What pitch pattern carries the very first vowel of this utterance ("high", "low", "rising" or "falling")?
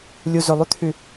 low